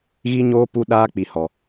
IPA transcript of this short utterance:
ɣ i˦ ɲ oː˦ p u˦ ɗ aː˦ k͡p i˨ h ɔ˨

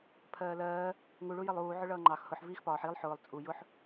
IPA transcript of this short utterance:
pʰ ɜː l ɜː | ŋ u ɭ u j ɜ lˠ uː ʕ ʊ ɭ ʌː ŋ͡ǃ ɑ x h ʊ ħ v iː x p ɒː ħ i lˠ ħ ʊː lˠ t͡sʼ u j ʊ ħ

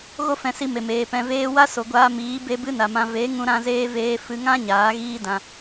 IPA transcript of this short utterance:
ɣ o˦ f ɛ̃˧ s i˧ m e˨ m eː˨ p ɛ̃˧ v eː˦ w a˦ s o˨ ɡʷ aː˧ m iː˨˦ b e˦ b ɨ˦ n a˨ m ã˧ v e˨˦ ŋ ũ˦ ɾ ã˦ z eː˦ v eː˦ f ɨ˧ ŋ ã˦ ɲ aː˨˦ ɣ iː˦ d ã˧

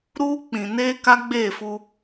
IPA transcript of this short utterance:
ɾ uː˦ k͡p ĩ˨ n eː˦ k a˦ ɡ͡b eː˦˨ f u˦

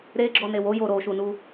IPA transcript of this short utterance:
ɾ e ɡ͡ǁ ɔ n e w o j o ɾ o ʃ u n u

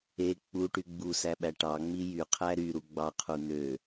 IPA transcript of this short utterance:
e k͡p u ʈ y ɡ͡b u s æ ɓ æ ʈ ɑ ŋ͡m i j y qʰ æ ɾ y ɾ u ɡ͡b ɑ qʰ u n̪ ø

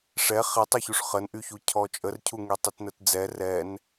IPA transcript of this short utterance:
ʂ ɛ χ ɛ tˤ u ç u ʂ χ ə n ʔ y ç u cʰ ɔ t͡ʃʼ ə r cʰ u ŋ y tˤ y t n ə t d͡z ɛ r ɛ n

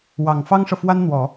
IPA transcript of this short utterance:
w ɑ˨˩ ŋ f ɑ˥ ŋ ʂ ɤ˨ f w a˥ n n̪ w ɔ˨˩˦

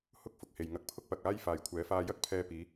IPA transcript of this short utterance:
h ʊ˥ k̚ f ʊ˨ k̚ h e˨ j ŋ ɐ˨˥ k̚ pʰ ʊ˥ k̚ p ɐ˨ k̚ aː˥ j f aː˨ j kʷʰ ɛː˨˥ f aː˧ j ɐ˥ k̚ pʰ ɛː˧ p iː˨˧

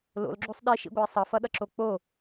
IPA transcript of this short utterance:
l o̰ l ɡ͡ǁ o sˤ ɗ i ʃ ḭ ɡʷ ʌ i̯ sˤ ʌ f ʌ ɗ ʌ ǁ o k͡p o

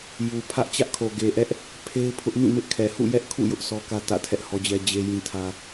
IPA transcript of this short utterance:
j u˨ pʰ ä˦ ʔ t͡ɕ ä˦ ʔ kʰ o˨ ɡ e˨ ʔ ɛ˦ ʔ | pʰ e˦ ɪ̯ pʰ ʊ˦ ʔ m ĩ˦˨ m ɪ˦ ʔ kʰ ɛ˨ h ṵ˦˨ j ɛ˦ ʔ kʰ ṵ˦˨ j ʊ˦ ʔ sʰ ɔ˦ k ä˦ t ä̰˦˨ tʰ ɛ˦ ʔ h ɔ˦ d͡ʑ ɛ˦ d͡ʑ e˦ j ĩ˦ tʰ ä˦

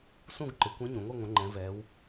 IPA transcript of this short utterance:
s ũ˥˨ ɡ ǃ ɪ˩˧ kʷ ẽ˧˥ ɲ ũ˩˧ ŋʷ i˥˨ ŋʷ ə̃˩˧ ŋ͡ǃ ɛ̃˩˧ v ɛ˩˧ w

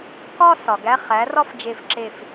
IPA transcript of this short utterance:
k ɒ˥˧ s ɒ˩ ɡ æ˧˥˧ χ æ˩˥ r ɒ˥˧ f d͡ʒ e˧˩ f ǁ e˧˩ f

